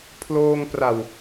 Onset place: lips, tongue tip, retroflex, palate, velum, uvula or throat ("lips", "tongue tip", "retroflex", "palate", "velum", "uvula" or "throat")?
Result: lips